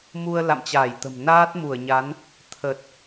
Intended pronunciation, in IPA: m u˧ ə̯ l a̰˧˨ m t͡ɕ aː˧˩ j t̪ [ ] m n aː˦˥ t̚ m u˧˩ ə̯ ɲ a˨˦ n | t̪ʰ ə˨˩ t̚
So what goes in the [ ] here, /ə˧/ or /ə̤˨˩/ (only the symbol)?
ə̤˨˩